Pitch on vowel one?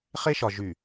high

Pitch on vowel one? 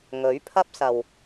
rising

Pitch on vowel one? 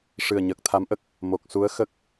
low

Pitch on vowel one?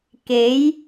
rising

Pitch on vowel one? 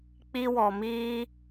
high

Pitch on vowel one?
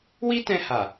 high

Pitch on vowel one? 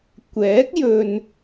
rising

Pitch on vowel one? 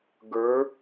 rising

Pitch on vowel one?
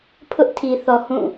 high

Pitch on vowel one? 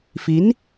rising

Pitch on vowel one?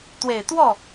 low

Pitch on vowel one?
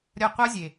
falling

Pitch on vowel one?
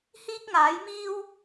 high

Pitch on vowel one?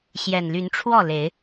low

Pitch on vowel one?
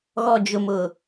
low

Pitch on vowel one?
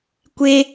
high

